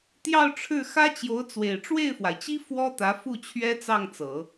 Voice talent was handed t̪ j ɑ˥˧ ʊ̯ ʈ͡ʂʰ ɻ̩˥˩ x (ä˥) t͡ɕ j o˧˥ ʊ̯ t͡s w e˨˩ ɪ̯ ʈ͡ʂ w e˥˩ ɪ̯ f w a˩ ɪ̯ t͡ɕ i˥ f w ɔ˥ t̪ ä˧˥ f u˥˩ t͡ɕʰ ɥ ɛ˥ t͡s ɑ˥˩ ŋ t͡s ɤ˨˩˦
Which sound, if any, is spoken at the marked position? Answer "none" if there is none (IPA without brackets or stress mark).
ä˥